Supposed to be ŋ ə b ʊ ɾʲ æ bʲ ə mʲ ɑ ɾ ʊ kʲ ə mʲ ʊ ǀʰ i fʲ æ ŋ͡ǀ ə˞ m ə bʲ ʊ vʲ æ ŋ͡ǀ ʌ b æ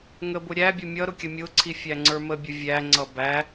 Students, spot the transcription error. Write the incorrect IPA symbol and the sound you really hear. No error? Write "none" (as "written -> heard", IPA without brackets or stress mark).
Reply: ɑ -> ʌ